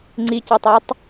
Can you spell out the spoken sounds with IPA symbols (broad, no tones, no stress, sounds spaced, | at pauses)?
ŋ͡ǀ i c i tˤ i tˤ